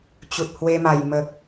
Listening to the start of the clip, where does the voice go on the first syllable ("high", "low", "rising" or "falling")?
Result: low